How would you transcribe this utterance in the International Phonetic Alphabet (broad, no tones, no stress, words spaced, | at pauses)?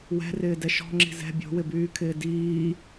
wɛ̤rɪːdɛ ʃɔ̤ŋ͡ǁi̤ zɛ̤ bʲo̤wɪbyːkʰɪː diː